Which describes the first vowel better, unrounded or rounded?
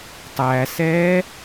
unrounded